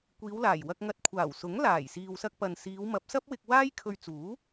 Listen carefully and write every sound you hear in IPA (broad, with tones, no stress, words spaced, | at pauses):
kʷiː˨˧wlaː˨˩jwɐ˧k̚ŋɐ˧t̚ kʷʰaː˨˩wsʊ˨˥ŋ laː˨˩jsiː˨wsɐ˧k̚ pɐ˨nsiː˨˧w mɐ˨˥p̚sɐ˥p̚wɪ˧k̚ waː˥jkʰɵ˧ɥt͡suː˨˥